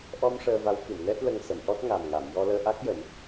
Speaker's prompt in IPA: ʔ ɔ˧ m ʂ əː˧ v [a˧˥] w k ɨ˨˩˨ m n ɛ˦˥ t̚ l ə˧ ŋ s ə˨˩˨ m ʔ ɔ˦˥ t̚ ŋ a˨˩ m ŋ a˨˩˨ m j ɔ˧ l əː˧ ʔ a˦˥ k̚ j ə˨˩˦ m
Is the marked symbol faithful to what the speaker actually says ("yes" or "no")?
yes